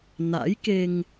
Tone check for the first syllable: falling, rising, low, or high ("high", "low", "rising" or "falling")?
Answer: rising